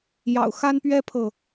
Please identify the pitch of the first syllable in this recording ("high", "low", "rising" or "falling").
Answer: low